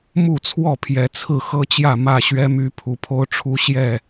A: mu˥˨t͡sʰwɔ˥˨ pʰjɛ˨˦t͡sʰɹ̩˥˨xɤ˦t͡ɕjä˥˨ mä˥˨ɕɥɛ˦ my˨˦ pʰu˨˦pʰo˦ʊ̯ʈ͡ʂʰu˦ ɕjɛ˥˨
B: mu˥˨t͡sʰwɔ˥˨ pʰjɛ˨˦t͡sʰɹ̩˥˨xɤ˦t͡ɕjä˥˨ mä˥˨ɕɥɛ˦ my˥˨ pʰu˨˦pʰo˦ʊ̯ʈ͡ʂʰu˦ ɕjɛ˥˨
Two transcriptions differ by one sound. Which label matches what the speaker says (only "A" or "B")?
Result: A